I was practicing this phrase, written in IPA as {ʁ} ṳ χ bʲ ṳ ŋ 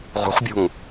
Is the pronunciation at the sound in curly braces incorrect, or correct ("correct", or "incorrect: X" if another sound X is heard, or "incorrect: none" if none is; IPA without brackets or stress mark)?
correct